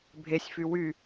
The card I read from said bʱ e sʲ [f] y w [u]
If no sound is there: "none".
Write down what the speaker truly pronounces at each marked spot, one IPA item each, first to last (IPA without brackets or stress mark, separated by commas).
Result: f, y